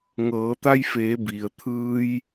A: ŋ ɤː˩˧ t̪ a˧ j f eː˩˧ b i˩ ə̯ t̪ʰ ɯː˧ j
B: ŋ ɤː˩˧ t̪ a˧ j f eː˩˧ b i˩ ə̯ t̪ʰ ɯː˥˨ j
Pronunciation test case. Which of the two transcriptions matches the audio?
A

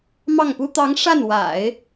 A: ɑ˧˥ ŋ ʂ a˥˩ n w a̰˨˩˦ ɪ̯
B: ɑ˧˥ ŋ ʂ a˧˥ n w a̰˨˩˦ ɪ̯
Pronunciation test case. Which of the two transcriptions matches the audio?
A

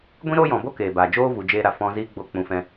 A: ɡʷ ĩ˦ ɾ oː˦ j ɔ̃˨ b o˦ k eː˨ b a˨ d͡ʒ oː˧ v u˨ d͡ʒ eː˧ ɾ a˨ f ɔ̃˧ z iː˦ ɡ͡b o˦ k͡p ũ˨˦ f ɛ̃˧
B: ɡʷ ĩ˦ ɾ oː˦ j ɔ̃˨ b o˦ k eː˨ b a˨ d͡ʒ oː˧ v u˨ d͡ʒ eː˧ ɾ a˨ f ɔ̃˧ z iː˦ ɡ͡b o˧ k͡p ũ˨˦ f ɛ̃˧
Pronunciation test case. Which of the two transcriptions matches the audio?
B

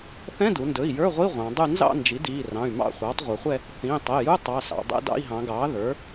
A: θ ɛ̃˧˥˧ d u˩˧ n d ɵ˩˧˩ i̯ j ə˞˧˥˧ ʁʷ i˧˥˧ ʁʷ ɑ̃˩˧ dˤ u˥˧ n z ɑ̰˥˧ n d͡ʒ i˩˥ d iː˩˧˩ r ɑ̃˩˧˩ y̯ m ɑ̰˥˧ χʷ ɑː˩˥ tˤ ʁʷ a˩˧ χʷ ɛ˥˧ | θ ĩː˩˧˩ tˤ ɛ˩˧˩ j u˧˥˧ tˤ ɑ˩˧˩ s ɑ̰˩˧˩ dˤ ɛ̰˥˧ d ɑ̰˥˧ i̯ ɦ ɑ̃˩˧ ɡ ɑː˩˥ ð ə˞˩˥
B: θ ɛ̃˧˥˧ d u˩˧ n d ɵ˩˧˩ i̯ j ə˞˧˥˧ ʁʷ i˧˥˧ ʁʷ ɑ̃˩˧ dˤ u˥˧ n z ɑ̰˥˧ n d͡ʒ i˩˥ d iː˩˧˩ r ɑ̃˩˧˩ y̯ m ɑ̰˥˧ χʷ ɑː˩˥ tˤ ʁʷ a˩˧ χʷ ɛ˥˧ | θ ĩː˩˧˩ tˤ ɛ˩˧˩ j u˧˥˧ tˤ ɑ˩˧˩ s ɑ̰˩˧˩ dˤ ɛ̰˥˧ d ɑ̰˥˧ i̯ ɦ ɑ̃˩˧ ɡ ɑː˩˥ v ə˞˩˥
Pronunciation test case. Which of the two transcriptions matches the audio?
A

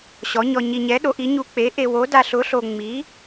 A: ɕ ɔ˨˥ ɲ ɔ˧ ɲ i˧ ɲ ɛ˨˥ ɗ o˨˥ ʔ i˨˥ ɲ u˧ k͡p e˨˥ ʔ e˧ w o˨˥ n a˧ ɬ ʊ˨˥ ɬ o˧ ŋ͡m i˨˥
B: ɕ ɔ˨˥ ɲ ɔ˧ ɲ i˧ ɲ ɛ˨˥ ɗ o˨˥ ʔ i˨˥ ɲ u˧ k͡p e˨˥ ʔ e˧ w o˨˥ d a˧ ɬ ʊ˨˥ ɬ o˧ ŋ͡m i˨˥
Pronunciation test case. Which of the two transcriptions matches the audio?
B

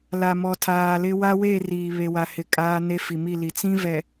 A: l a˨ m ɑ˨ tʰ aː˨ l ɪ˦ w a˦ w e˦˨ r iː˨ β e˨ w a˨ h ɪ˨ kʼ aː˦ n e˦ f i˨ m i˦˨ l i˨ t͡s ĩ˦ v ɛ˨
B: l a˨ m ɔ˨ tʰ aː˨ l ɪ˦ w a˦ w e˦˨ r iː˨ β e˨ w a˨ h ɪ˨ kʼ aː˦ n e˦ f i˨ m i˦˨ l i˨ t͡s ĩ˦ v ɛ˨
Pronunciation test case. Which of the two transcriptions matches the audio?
B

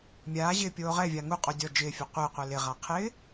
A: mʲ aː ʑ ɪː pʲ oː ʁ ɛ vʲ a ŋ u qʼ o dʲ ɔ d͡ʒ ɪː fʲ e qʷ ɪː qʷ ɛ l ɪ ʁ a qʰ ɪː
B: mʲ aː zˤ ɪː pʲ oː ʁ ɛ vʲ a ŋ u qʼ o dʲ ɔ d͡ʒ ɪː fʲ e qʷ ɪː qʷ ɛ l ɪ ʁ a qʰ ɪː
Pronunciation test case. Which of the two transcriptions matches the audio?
A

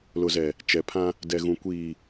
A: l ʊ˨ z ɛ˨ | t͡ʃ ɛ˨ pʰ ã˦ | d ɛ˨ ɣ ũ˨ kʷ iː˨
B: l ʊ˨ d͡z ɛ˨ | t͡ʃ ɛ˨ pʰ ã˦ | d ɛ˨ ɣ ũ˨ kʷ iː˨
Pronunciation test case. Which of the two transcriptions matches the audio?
A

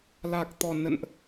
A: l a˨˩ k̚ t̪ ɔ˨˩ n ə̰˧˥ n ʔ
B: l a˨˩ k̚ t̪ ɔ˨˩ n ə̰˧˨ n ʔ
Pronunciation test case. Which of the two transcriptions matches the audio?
B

